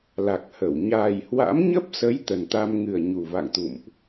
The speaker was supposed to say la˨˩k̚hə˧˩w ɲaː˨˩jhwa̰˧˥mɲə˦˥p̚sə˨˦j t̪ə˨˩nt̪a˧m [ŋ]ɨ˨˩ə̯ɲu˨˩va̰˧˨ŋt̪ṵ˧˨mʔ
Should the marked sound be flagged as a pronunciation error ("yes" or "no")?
no